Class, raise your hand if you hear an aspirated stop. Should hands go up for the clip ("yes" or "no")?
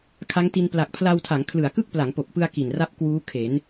yes